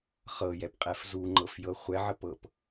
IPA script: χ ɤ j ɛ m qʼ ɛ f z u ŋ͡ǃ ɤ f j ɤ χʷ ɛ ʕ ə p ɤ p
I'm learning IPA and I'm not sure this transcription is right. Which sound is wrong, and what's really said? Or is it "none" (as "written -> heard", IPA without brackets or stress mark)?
m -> p